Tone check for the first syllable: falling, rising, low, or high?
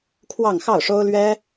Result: falling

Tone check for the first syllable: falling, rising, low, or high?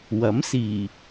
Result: rising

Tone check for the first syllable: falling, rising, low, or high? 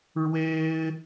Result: high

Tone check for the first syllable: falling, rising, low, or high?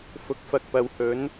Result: rising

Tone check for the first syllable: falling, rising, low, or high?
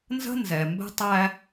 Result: high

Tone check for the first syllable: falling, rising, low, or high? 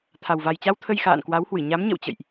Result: low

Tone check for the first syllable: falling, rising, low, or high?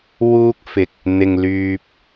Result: high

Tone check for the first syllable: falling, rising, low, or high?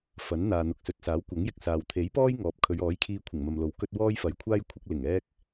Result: rising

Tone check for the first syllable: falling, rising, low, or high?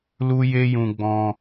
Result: high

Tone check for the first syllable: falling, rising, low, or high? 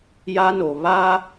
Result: high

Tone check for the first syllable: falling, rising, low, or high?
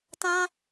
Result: high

